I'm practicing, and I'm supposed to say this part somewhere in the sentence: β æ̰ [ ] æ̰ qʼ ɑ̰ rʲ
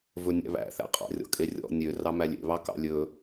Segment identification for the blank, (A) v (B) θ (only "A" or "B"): B